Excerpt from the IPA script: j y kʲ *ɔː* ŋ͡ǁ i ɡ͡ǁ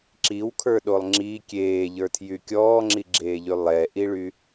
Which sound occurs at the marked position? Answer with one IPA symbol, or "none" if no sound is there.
ɔː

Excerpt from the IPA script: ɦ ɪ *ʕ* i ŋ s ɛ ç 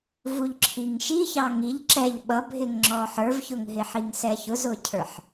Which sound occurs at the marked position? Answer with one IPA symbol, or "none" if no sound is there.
ħ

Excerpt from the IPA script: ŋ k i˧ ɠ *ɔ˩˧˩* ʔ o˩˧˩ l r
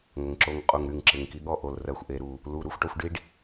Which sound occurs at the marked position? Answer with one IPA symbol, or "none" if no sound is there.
ɔ˥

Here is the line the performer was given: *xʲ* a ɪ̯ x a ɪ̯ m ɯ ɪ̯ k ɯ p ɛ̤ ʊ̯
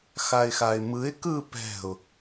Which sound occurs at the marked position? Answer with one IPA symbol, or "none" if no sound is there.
x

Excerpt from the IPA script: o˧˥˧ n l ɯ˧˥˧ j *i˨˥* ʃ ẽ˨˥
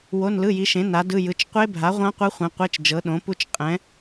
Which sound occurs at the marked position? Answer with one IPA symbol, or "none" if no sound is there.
i˨˥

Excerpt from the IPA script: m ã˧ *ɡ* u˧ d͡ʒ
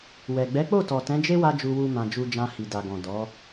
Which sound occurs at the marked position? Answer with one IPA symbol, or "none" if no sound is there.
d͡ʒ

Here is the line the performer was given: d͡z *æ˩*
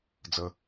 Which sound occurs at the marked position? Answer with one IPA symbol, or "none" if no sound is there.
ə˩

